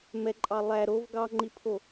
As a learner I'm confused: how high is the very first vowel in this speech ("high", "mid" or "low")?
mid